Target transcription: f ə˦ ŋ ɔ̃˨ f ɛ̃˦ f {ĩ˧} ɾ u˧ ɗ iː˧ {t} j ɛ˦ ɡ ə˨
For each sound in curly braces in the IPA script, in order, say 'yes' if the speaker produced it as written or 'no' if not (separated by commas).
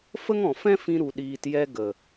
yes, yes